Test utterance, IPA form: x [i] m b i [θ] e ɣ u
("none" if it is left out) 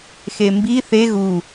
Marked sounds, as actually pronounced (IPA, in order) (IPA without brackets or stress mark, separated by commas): e, θ